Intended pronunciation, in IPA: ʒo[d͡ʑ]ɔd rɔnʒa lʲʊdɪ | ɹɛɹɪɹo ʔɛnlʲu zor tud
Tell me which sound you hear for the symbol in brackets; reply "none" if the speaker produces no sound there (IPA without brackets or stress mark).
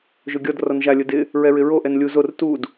ɡʲ